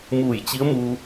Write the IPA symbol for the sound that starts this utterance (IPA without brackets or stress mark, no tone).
m